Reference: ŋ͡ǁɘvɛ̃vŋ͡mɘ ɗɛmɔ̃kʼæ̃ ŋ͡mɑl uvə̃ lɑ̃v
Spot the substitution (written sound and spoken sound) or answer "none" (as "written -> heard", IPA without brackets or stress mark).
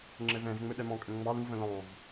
æ̃ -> ə̃